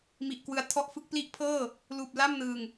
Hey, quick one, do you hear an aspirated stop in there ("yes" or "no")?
yes